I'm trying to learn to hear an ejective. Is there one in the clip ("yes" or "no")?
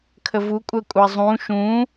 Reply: yes